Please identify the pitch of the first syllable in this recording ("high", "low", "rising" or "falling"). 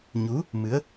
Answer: rising